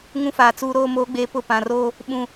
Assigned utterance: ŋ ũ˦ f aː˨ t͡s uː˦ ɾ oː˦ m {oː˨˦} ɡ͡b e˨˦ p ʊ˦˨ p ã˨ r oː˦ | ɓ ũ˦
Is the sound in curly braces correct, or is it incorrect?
correct